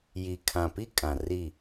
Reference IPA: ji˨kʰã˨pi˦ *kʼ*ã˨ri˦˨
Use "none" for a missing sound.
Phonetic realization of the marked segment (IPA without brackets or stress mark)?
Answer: kʼ